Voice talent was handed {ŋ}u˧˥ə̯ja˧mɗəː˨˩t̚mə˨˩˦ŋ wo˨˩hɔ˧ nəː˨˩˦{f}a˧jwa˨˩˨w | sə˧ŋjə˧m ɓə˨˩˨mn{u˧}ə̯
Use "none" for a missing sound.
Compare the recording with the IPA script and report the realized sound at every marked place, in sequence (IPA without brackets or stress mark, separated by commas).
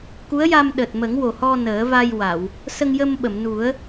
k, v, u˨˩˦